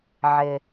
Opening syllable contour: low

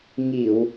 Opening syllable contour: low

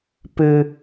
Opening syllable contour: low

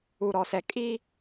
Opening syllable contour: low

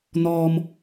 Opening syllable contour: low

